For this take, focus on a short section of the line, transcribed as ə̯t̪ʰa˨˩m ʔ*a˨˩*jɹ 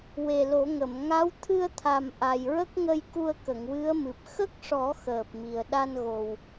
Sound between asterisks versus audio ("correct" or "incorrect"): correct